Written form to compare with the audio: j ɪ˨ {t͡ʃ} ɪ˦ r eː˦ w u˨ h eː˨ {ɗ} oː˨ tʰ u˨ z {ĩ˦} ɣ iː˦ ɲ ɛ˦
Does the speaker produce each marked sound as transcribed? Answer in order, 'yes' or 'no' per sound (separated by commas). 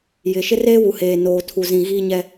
no, no, no